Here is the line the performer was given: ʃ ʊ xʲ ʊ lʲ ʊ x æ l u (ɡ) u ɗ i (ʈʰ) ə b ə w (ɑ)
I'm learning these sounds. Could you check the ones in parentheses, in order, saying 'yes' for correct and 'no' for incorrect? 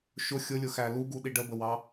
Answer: yes, no, yes

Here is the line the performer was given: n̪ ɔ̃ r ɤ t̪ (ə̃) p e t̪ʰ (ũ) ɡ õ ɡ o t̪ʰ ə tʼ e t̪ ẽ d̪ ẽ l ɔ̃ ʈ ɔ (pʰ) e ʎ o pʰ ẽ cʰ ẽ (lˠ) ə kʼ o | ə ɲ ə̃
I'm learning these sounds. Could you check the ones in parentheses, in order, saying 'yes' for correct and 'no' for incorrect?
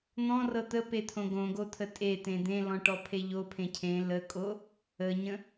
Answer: no, no, yes, no

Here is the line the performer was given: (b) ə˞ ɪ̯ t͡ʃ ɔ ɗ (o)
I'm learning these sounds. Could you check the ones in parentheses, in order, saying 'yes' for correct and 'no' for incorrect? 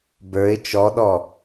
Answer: yes, no

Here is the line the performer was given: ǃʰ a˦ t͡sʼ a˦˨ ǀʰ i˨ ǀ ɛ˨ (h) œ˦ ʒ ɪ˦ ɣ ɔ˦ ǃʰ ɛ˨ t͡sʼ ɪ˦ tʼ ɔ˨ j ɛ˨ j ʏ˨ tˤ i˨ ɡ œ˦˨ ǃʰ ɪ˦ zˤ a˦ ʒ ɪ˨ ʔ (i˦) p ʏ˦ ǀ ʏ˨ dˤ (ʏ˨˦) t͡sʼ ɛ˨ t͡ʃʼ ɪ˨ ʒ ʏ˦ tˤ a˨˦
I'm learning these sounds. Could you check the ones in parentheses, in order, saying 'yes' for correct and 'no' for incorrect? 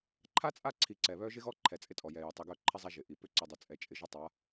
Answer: no, no, no

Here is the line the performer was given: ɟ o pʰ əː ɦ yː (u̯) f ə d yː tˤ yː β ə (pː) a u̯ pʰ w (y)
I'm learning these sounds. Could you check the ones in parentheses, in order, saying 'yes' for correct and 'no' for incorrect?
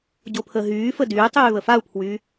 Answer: no, no, yes

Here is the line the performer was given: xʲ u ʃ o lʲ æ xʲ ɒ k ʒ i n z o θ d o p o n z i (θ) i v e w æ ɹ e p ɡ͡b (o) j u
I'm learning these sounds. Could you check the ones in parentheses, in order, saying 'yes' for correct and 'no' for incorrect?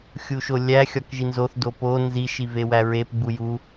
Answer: no, no

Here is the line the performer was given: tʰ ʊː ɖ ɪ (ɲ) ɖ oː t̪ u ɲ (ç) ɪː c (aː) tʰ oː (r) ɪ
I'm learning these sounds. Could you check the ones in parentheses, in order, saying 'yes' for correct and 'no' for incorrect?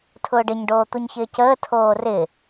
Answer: yes, yes, no, yes

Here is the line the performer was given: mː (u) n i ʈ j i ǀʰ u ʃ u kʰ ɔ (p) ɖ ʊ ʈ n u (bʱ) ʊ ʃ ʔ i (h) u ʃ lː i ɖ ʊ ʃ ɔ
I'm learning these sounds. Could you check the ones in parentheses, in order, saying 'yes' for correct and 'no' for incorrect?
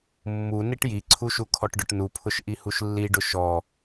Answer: yes, no, no, yes

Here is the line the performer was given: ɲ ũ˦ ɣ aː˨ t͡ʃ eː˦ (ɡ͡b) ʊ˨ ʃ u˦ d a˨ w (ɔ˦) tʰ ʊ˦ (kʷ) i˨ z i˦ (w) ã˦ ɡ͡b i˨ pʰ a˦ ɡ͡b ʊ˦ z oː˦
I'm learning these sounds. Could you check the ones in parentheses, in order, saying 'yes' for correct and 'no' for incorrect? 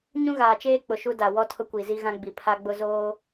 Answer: no, yes, yes, no

